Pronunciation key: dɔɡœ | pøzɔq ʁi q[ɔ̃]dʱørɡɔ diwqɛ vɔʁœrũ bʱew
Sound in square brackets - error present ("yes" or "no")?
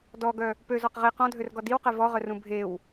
no